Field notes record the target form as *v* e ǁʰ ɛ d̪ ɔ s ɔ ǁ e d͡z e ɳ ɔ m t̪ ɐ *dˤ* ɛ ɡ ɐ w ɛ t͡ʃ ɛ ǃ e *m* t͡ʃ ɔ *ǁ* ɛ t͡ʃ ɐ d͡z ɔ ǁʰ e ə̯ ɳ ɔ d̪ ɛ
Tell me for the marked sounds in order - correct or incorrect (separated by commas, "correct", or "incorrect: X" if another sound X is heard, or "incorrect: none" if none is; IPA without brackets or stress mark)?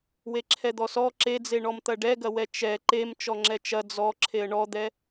incorrect: w, incorrect: ɖ, correct, incorrect: ŋ͡ǁ